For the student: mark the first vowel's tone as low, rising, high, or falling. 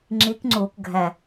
rising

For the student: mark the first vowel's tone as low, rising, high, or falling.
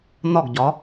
falling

